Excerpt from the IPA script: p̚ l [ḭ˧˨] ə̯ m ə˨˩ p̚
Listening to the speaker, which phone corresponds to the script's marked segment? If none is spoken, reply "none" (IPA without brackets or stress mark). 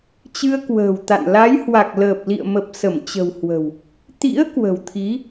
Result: ḭ˧˨